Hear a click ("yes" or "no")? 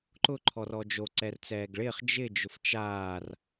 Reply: yes